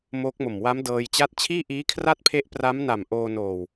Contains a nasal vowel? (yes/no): no